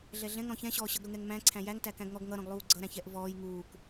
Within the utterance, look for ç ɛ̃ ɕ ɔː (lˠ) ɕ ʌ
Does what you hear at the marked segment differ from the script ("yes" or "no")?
yes